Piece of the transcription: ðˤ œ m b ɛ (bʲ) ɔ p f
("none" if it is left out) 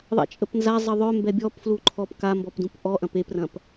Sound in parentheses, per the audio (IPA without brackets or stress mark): bʲ